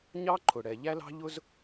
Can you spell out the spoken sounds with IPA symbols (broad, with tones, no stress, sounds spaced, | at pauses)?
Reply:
ɲ ɑ˦ ǃʰ ʊ˨ ɽ ɛ˨ ʎ æ˦ l ɑ̤˦ ʎ ʊ˦ z